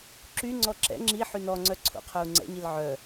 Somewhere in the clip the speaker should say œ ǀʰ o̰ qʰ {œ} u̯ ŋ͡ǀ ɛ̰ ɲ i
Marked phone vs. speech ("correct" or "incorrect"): correct